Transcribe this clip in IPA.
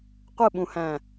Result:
qʷ ɯ ɓ ũ h æ̃

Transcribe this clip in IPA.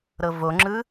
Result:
ɾ ɤ v o ŋ͡ǁ ɯ

